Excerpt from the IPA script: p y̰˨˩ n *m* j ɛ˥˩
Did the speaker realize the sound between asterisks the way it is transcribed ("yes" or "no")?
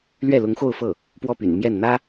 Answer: yes